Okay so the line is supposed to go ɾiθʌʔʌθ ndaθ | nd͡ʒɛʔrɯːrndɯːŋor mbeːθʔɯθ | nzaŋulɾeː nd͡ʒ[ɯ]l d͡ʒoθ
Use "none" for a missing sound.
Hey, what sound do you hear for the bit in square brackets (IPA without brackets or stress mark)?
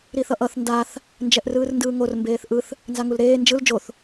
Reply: ɯ